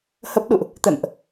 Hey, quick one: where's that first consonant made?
throat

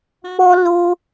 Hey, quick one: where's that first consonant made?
lips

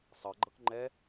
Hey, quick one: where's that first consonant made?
tongue tip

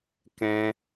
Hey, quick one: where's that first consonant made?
velum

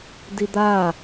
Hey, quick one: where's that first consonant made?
tongue tip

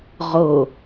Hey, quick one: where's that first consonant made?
uvula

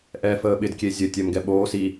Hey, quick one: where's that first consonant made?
throat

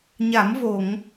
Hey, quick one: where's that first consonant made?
palate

